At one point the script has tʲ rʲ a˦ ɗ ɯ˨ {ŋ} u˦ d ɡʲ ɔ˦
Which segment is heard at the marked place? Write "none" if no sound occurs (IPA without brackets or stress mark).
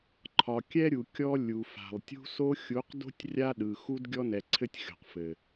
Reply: x